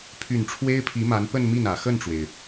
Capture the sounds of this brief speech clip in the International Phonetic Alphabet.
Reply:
pʰ y˨˩ n ʈ͡ʂʰ w e˥ ɪ̯ pʰ i˧˥ m a˧˥ n p ə˥˧ n m i˥˩ n ä˨˩ x ə˥˩ n ʈ͡ʂ w e˩ ɪ̯

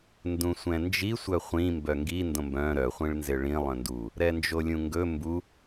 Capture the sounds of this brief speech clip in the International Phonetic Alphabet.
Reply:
n d ũ sʷ ɛ̃ n d͡ʒ i sʷ œ χʷ ĩ m b œ ŋ ɡ i n d õ m b œ̃ ɾ œ χʷ ĩ ɭ n z ɪ ɭ ĩ lˠ œ̃ n d u | ɾ ɛ n d͡ʒ o lʲ ũ ŋ ɡ ɵ m b u

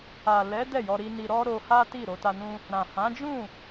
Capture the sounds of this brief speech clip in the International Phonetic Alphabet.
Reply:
a˨ l ɛ˨˦ d ɛ˦˨ j ɔ˧ ɾ i˧ n i˧ ɾ ɔ˦ ɾ o˧ h a˦ t i˦˨ ɾ o˧ t a˧ n ũ˦ | ɾ ã˨ h ã˨˦ d͡ʒ ũ˦˨

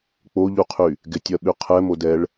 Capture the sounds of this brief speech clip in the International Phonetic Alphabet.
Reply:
k͡p o ʎ u qʰ y | ɡ ɪ tʲ ɜ ɓ y qʰ ɛ m o d ɛ ɭ

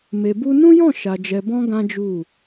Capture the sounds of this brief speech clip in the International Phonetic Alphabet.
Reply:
m e˨ b u˧ n ũ˦ j ɔ̃˦˨ ʃ a˨ d͡ʒ ɛ˨ b ɔ̃˧ ɡ ã˦ d͡ʒ u˦˨

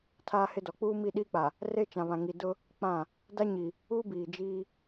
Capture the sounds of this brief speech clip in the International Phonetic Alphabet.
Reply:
tʰ aː˦ h ɪ˦ d ɔ˨ k͡p uː˦ m i˦˨ ɗ iː˦ k͡p a˨ | r e˦ t͡ʃ ã˨ β ã˨ ŋ i˨ d ʊ˦ | k͡p ã˦˨ | d a˦ ɲ i˨ | u˦ b iː˨ d͡ʒ iː˦

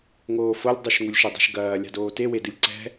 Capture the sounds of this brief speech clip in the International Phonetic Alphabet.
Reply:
ŋ oː f o lʲ dˤ u ʃ ŋ u lʲ ʃ ɘ dˤ e̤ ʃ ɡ ɐː lʲ a̤ d oː t e w e d ɨ lʲ ǀ ɛ̤

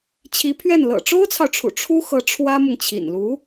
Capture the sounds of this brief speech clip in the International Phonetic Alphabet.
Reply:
t͡ɕʰ i˧˥ pʰ ɥ ɛ˥˩ n l ɤ̰˨˩ ʈ͡ʂ o˥ ʊ̯ t͡sʰ ɑ˨ ʊ̯ ʈ͡ʂʰ ṵ˨˩ ʈ͡ʂʰ u˥ x ɤ˧˥ ʈ͡ʂʰ w ä˥ m ʊ˨ ŋ t͡ɕʰ ḭ˨˩ n l u˧˥

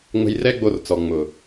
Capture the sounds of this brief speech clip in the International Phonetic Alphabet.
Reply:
ŋ͡m ə̤˧ j r ɛ˦ ɡ͡b o˧ r t͡s ɔ˨ ŋ͡m ʊ˨

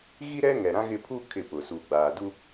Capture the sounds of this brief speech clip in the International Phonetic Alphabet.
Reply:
ɣ i˦ ɾ ɛ˦ ŋ ɛ˨ ɾ ã˦ ɣ ɪ˦ pʰ u˦ kʰ ɪ˦˨ p ʊ˨ s uː˨ ɡ͡b aː˨ d u˦

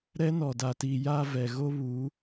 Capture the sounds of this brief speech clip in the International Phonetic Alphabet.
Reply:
ɾ ɛ˦ n ɔ˨ d a˨ t iː˨ j a˨ v ɛ˨ ɣ o˦ β u˨˦

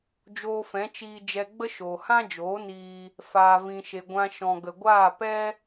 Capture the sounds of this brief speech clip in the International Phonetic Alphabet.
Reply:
d͡ʒ oː˧ f ɛ̃˨˦ t͡ʃ iː˧ d͡ʒ ɛ˧ ɡ͡b ə˦ ʃ oː˨ h ã˦ d͡ʒ oː˨˦ n iː˧ | f aː˧ v ĩ˧ ʃ e˧ ɡʷ ã˧ ʃ ɔ̃˨ ɡ ə˨ ɡʷ aː˦˨ p ɛ˦

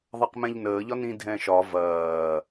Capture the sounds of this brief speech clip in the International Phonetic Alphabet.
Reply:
ðˤ ɐ q m ɛ̃ ʎ n əː ʎ ɒ n ĩ dʱ ɛ̃ ʃ ɒ v ɐː

